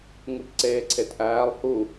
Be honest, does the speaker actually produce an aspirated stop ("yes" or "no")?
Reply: yes